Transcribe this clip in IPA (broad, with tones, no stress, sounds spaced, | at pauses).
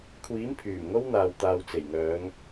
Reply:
kʷʰ iː˨˥ m pʰ yː˨˩ m ŋ o˥ w n̪ aː˨ w t̪ aː˨ w t͡s e˨˩ j ŋ œː˨˧ ŋ